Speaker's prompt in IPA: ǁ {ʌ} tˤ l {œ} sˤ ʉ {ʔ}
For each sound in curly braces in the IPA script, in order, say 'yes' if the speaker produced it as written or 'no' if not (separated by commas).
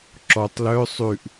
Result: no, yes, yes